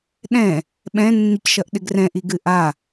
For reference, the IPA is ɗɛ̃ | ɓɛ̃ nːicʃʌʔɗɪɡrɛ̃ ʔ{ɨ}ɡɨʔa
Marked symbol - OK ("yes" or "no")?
no